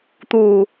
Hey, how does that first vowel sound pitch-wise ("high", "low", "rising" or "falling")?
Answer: low